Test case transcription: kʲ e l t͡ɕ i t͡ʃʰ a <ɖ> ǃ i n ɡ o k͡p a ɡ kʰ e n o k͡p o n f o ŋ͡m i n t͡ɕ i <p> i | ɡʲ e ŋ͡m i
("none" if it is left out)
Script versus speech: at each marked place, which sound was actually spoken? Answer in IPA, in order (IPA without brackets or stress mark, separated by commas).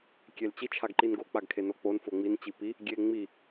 ɡ, p